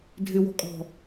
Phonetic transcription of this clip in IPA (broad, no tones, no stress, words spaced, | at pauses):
dʱɪwɔ̤ kʼɔ̤